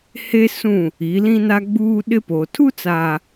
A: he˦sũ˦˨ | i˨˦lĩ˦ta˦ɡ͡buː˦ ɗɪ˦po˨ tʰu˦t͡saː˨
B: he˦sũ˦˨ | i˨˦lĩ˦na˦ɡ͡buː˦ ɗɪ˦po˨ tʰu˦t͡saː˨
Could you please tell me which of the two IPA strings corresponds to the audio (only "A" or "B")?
B